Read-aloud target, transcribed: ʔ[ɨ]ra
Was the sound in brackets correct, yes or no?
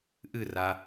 yes